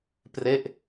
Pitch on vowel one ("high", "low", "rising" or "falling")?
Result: falling